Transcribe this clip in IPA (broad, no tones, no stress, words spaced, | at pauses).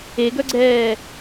eɡœɡ͡ǀɛː